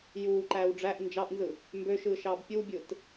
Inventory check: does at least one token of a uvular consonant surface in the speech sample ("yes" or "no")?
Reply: no